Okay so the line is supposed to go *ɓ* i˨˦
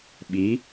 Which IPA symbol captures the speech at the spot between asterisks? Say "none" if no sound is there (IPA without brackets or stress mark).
ɓ